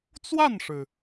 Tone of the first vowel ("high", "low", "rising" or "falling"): falling